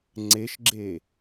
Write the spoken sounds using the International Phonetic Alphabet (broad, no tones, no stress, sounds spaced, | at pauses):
ŋ͡ǀ e ʃ ɡ͡ǁ e